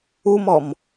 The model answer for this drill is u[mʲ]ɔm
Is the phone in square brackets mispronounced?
yes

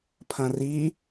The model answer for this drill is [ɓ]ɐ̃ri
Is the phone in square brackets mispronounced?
yes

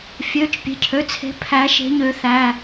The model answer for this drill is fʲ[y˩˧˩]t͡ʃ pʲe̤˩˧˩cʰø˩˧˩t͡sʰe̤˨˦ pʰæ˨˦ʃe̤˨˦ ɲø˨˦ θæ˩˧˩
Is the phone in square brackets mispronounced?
yes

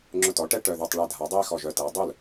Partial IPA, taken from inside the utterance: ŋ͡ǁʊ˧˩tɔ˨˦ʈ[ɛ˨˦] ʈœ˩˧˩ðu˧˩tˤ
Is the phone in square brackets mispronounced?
yes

